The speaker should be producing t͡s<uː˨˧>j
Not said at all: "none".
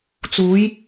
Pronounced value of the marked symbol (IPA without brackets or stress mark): uː˨˧